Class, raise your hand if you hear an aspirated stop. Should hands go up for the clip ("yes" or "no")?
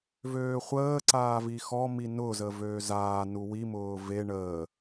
no